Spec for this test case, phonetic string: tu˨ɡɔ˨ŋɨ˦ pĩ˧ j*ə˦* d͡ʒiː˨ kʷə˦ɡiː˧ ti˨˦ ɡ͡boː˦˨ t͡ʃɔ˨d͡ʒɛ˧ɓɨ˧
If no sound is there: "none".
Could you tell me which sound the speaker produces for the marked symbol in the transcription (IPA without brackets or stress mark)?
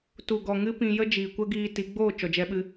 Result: ə˦